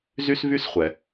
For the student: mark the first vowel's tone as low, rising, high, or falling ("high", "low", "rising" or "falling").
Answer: high